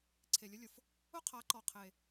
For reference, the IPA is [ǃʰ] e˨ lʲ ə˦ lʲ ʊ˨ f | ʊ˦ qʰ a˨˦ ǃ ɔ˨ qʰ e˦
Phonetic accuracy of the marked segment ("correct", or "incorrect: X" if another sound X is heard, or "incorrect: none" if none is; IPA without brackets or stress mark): incorrect: ǀʰ